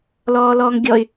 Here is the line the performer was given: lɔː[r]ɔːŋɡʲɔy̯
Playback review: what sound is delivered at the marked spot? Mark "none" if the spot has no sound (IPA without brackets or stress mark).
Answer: l